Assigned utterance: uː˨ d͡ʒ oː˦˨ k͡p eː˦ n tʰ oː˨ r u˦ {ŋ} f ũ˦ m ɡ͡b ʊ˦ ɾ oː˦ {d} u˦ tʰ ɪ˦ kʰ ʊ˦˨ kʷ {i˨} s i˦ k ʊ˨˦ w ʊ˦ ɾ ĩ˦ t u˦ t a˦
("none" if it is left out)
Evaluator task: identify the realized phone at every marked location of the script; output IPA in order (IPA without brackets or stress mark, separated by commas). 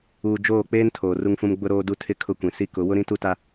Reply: ŋ, d, ĩ˨